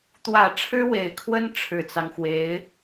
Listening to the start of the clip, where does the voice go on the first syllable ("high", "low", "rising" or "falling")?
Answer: low